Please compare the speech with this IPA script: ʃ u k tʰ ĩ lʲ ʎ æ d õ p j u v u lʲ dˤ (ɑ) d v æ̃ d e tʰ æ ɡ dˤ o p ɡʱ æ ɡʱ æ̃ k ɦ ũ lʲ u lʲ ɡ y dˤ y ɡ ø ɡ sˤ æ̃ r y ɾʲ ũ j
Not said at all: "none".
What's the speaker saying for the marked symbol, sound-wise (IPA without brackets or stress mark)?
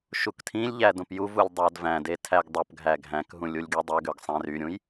ɑ